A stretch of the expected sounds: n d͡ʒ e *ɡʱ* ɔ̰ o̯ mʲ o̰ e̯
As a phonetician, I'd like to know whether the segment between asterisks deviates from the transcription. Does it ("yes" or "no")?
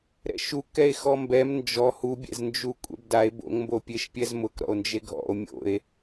no